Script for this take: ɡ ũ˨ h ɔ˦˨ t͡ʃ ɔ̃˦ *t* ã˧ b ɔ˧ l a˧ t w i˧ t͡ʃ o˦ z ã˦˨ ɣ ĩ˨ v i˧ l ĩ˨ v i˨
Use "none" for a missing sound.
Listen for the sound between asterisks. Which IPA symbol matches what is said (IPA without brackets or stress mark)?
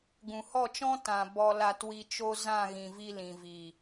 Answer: t